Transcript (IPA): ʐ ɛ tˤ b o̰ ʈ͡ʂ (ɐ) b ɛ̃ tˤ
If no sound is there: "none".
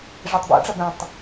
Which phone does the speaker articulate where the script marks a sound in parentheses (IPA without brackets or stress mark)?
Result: ɐ